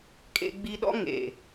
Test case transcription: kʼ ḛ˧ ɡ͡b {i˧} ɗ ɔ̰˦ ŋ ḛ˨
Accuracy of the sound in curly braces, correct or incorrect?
correct